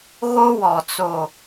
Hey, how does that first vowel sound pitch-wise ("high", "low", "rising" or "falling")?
high